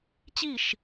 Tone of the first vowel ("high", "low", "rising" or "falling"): falling